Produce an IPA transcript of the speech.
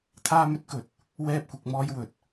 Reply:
t̪ʰaː˥mɵ˥t̚kɵ˨˥t̚ | wɛː˥p̚kʷɪ˨˥k̚ mɔː˥jwɵ˨t̚

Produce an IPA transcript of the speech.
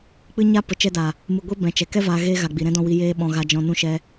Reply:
k͡pɨ˧ɲa˧ pə˨t͡ʃɛ˧da˨ | mɨ˨ɡʷi˦ bɛ̃˨t͡ʃɛ˨ kɛ˦ vaː˧ɣeː˦ɣa˨ ɡ͡bi˨ɾɛ̃˦dɔ̃˧wi˧ jeː˧ɓɔ̃˨ ɣa˨d͡ʒɔ̃˨nũ˧ ʃɛ˧

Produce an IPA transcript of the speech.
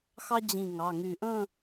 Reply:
xɑ˥d͡ʑĩ˧˩ŋɑ˩˧˩ŋy˧˩ ʔə̃˥˧

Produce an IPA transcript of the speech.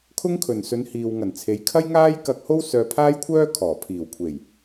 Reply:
kʰʊ˥ŋkʰɵ˨n sɵ˨˧n hiː˧w ŋɐ˨˩nt͡sʰe˨˧j kʰɐ˥jŋaː˥j kɐ˧k̚ho˥w sœː˧pʰaː˥jkʷʰœː˥kʰɔː˨˩ pʰiː˨˩wkʷʰe˨˩j

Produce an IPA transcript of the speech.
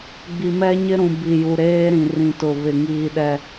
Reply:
ɡ͡bi˨mɛ˦ɲɪ˦ɾũ˨ bi˨ju˨ɾeː˦ɾĩ˨ rĩ˨tʊ˨ βɪ˨ŋiː˨ɗɛ˨

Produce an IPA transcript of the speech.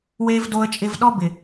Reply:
we˦v do˧ə̯t͡ʃʼɪ˧vɗɔ˦bɪ˨

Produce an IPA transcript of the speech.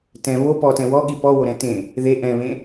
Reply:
tɛ̃ βo pɔtɛ̃ wɔɠi pɔwoɾɛ̃ tẽ | ðe ʔɛ̃βẽ

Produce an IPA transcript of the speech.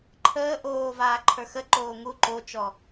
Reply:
ǃʰəː ʔoːvaː ǃʰə˞xə ǃoːŋu ǃot͡ʃɔ

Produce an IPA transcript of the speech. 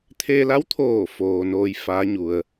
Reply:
t̪ʰe˧la˧˥wt̪ʰoː˧˩ foː˩noː˧j faː˧˥ɲu˩ə̯

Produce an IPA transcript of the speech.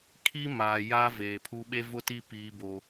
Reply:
kʰi˦maː˨ ja˦ veː˨pʰu˦ ɓe˦vʊ˦ti˦ piː˦bo˦

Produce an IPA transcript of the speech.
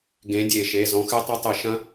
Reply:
ɡẽ˨˥dʲe˧˩˧ʃe˩˧˩ zɔ̃˨˥xɨ˦˥ tˤɐ˦˥tˤɨ˧˩˧ʃɐ̃˦˥

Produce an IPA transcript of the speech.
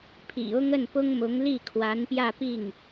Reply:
pʰḭ˨˩ʊ˥ŋ ə˥˩npʊ˥ŋmʊ˧˥ŋli˥˩ kʰwa˧˥npjä˥˧pi˥˩ŋ

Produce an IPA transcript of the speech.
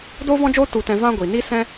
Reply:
doː˦vɔ̃˦d͡ʒoː˦ tu˧tɛ̃˧ vã˦ ɡʷi˨ni˦ sɛ̃˦

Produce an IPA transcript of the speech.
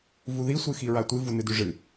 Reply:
vuði sʷɨxiɹatʷɨ vunɨdʉʐɨ

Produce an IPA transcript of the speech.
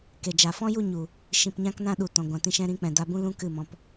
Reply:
ke˨d͡ʒa˨ fɔ̃˦ju˦˨ɲu˨ | ʃĩ˨pɲã˦knã˦ ɗu˨ tɔ̃˨ɡʷã˨tĩ˧ ʃɛ̃˧ɾĩ˨˦k͡pɛ̃˨ da˧bũ˦lũ˦ kɨ˦˨mɔ̃˧p

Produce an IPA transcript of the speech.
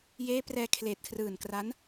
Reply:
jeː˦˥prɛː˧ kʰleː˨˩t̚kʰrɯː˨˩n kra˦˥n

